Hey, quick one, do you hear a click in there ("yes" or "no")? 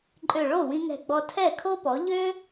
yes